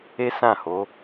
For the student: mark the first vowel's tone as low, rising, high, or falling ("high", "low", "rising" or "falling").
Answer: high